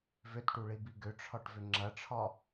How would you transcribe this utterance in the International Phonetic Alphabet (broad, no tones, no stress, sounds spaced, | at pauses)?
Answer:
v ʏ t ʈ u ɭ i b i ɡ ʏ ʈ͡ʂʰ ɒ ʈ v ʏ ŋ͡ǁ ɐ ʈ͡ʂʰ ɒ